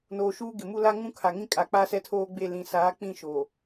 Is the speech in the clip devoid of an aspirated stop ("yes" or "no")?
no